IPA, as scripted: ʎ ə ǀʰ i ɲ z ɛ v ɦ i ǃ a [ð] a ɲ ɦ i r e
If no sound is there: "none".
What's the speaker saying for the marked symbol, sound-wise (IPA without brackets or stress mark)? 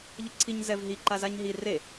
z